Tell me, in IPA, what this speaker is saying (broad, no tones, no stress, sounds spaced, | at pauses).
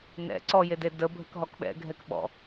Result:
n ɛ̰ ǀ ɔ j e d e d ə bʱ ə k ɦ ɔ k ɓ ɛ̰ ɡʱ ɛ k ɓ ɔ̰